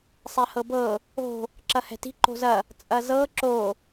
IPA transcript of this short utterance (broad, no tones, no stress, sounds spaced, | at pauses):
sˤ ɛ h ɤ b ɤ | o̤ | ǁ ɐ h ɛ̤ t i̤ ǃ o̤ z ɐ | t͡sʼ ɐ z ɤ ǁ o